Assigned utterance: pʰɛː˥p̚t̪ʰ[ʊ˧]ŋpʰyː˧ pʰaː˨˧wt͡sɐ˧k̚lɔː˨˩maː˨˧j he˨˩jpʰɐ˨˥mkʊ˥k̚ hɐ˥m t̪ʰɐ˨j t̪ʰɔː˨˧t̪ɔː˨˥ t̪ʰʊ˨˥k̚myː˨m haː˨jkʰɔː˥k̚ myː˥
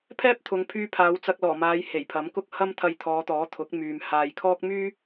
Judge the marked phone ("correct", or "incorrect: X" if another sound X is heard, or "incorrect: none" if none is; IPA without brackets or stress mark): incorrect: ʊ˨˧